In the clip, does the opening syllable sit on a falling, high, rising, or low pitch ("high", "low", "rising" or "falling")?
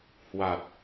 low